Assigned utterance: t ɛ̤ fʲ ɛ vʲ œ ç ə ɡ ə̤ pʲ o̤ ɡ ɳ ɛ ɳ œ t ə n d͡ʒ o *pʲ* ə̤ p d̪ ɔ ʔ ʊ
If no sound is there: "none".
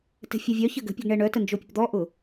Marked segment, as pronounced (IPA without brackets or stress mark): pʲ